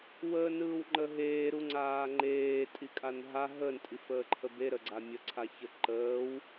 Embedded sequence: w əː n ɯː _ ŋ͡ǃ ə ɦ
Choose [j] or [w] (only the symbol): w